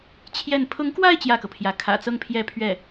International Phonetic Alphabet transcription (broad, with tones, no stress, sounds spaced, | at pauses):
t͡ɕʰ j ɛ˥˩ n pʰ ʊ˧˥ ŋ k w a˥˧ ɪ̯ t͡ɕ j ä˥˩ k ɤ˩ pʰ j ä˧˥ kʰ ä̰˨˩ t͡s ɤ˥˧ ŋ pʰ j ɛ˥˧ pʰ ɥ ɛ˥˩